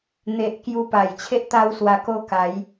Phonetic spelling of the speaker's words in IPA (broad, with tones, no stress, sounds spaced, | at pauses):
n̪ e˨ ʔ k j u˧ p a˨˩ j t͡ɕʰ e˦ ʔ t̪ a˦ w s w a˧ k o˥˧ k a˨˦ j